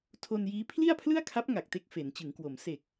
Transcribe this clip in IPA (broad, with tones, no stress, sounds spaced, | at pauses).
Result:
tʰ o˧ n j iː˦˥ pʰ l i˥˩ a̯ pʰ l ɯ˥˩ a̯ kʰ a˦˥ p̚ ŋ a˨˩ k̚ t e˦˥ k̚ f e˩˦ n t͡ɕ ɯ˩˦ ŋ k w o˩˦ m s e˨˩ k̚